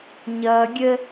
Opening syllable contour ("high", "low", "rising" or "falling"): high